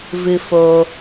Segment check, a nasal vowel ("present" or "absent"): absent